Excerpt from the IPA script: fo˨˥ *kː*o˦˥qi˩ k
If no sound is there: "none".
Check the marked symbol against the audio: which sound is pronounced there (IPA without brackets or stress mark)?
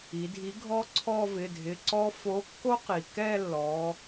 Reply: kː